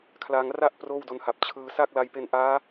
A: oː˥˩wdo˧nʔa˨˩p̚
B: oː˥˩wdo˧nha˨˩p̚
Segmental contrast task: B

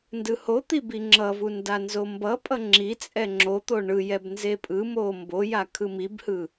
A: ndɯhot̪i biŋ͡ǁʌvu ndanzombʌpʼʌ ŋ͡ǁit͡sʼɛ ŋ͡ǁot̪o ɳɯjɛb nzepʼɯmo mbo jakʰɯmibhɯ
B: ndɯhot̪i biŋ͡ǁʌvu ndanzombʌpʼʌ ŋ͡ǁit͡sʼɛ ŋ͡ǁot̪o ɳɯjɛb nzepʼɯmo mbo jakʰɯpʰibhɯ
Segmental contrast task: A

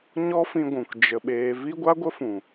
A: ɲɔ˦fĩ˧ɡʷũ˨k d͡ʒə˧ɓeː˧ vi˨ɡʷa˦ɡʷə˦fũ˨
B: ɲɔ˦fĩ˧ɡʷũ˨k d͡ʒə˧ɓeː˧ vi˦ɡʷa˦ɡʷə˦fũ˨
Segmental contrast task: B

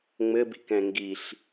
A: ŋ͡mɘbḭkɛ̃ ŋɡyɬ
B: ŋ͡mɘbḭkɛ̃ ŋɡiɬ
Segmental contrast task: B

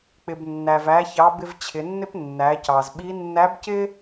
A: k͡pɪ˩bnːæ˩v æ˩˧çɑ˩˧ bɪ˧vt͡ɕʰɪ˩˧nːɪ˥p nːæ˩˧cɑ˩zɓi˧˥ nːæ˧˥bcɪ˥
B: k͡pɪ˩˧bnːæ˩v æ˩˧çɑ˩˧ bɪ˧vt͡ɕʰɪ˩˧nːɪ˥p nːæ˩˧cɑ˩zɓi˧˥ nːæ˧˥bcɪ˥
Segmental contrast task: A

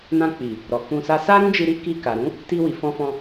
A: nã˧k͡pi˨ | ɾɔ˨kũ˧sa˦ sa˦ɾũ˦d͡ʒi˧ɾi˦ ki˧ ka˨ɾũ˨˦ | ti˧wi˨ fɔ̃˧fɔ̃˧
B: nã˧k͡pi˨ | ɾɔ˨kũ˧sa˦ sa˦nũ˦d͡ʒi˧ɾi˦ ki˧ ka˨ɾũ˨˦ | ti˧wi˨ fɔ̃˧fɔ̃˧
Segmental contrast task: A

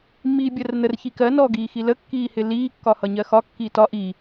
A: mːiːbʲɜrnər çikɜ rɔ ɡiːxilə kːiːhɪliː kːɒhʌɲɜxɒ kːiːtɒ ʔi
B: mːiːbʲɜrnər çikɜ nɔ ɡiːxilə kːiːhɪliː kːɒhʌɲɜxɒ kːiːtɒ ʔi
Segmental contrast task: B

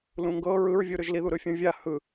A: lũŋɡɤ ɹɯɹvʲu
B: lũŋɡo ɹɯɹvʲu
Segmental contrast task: A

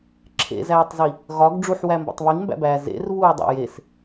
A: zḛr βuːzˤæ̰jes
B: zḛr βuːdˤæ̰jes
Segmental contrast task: B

